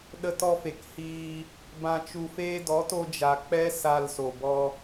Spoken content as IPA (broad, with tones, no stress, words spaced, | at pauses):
ɗə˧tɔ˧fe˨k hiː˧ | bã˨t͡ʃu˨feː˧ dɔ˨˦to˧d͡ʒa˨ k͡pɛ˦ sa˧lso˨ bɔ˧